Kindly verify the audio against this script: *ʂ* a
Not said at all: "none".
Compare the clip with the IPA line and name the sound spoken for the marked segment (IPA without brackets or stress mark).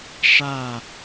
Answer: ʂ